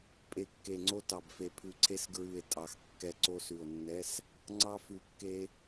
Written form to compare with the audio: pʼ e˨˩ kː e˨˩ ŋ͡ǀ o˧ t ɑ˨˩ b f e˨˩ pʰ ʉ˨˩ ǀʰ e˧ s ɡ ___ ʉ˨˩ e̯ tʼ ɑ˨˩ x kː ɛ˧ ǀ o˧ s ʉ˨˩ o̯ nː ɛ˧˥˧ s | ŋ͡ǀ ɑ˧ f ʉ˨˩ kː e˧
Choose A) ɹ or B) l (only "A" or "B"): A